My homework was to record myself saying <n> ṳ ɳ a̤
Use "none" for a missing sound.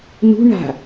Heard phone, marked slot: n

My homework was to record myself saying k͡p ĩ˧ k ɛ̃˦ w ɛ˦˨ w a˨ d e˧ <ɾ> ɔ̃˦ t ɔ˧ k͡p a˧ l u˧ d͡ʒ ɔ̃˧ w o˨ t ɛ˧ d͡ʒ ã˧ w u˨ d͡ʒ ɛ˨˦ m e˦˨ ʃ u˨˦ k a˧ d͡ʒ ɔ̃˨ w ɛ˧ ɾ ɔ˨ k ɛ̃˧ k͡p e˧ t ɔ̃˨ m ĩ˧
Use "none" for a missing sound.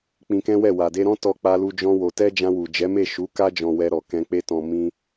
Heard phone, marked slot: ɾ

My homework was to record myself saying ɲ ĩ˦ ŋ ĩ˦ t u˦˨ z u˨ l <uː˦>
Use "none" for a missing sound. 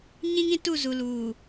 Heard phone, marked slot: uː˨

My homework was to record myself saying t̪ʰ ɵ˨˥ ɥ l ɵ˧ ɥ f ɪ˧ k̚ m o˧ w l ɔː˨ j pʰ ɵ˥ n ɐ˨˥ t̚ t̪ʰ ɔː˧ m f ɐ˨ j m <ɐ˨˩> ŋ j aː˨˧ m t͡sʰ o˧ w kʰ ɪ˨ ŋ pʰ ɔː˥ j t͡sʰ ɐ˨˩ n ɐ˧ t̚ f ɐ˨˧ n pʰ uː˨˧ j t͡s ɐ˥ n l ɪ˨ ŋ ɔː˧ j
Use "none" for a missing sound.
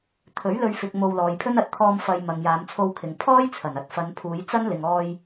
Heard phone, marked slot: ɐ˨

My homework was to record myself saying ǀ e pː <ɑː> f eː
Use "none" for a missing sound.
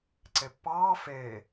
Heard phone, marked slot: ɑː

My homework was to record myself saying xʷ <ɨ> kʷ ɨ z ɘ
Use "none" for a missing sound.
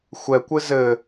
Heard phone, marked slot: ɛ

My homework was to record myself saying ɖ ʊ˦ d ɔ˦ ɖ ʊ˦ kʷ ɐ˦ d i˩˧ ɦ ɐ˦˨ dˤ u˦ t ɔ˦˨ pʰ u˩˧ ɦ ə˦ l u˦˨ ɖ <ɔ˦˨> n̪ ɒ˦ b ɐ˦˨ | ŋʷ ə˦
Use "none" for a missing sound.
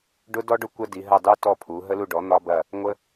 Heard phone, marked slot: ɔ˩˥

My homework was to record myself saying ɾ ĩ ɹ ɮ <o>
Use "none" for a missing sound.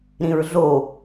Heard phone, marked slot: o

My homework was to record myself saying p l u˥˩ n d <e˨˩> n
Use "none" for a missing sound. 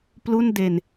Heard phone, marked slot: e˨˩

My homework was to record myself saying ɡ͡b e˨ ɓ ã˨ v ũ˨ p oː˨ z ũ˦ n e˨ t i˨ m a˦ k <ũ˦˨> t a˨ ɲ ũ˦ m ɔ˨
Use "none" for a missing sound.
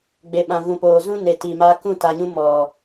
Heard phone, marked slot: ũ˦˨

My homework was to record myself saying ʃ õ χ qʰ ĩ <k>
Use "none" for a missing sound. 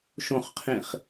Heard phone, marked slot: χ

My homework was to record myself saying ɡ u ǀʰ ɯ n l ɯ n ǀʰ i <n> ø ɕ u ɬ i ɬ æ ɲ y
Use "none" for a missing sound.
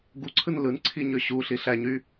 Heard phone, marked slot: ɲ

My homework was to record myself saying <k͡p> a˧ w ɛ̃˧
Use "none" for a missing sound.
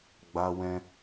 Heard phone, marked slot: ɡ͡b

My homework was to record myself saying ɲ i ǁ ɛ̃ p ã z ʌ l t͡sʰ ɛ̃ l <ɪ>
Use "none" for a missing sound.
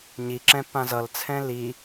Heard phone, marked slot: i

